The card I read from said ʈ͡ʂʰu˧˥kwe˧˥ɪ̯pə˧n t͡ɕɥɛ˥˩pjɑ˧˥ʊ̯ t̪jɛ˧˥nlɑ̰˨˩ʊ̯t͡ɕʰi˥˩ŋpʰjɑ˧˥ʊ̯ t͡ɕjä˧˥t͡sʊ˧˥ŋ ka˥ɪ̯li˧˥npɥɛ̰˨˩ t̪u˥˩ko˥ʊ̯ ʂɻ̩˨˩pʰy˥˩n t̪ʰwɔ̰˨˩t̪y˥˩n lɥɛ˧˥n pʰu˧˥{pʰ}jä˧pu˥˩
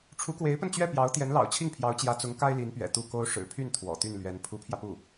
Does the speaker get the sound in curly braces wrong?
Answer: no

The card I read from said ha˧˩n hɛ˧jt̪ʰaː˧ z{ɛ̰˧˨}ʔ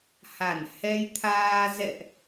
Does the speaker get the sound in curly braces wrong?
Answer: no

